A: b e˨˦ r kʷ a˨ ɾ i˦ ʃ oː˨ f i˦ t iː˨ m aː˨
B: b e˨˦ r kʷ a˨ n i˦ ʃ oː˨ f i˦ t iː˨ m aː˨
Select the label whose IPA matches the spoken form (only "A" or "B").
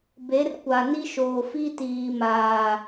B